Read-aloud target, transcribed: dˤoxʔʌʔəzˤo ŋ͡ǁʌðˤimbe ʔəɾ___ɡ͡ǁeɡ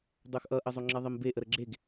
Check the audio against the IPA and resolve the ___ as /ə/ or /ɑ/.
ə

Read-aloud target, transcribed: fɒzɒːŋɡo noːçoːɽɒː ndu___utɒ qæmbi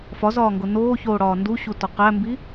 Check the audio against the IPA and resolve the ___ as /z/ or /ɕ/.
ɕ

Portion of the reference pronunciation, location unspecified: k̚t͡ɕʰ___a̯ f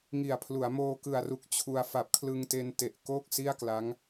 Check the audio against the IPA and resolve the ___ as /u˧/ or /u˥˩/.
u˧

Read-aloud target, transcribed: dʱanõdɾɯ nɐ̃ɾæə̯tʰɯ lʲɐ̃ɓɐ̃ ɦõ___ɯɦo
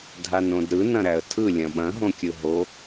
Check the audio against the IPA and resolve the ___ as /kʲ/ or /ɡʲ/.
kʲ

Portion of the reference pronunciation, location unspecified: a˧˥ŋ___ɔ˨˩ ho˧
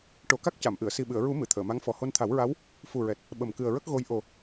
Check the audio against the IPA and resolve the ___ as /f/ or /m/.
f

